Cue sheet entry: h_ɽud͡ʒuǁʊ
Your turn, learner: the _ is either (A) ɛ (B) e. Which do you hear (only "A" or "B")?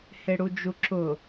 B